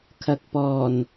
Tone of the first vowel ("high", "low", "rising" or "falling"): low